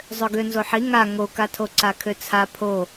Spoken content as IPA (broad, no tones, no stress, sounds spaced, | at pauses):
zˤ ø ɡ ø n z o ħ i ŋ a ŋ o k a tʰ o ǀ a kʰ ø t͡sʰ a pʰ o